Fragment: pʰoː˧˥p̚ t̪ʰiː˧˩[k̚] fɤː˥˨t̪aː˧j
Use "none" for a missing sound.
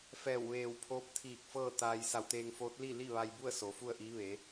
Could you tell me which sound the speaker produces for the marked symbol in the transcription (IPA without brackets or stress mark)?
k̚